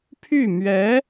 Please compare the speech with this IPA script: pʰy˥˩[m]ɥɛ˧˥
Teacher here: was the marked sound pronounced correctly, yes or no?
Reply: yes